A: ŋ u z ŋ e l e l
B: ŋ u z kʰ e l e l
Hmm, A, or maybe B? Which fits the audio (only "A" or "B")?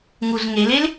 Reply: A